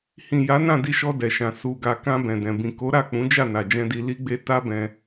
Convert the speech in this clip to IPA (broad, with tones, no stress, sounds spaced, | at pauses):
h ĩ˨ j a˨˦ n ã˦˨ d i˧ ʃ ɔ˧ d ɛ˨ ʃ ã˨ s u˨ ɡ a˨ k ã˧ b ɛ̃˨ d ɛ̃˨ b ĩ˨ k o˨˦ ɾ a˦˨ k͡p ũ˨˦ d͡ʒ a˦˨ n a˨ d͡ʒ ɛ̃˧ d i˧ l i˦ ɡ͡b e˦ t a˦ b ɛ̃˧